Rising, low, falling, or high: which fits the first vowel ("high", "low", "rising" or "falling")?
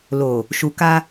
low